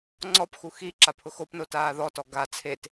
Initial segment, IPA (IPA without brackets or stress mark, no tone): ŋ͡ǀ